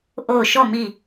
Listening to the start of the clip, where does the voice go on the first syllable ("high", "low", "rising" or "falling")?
falling